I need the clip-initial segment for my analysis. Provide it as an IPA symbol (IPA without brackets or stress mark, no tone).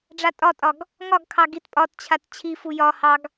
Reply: ɖ͡ʐ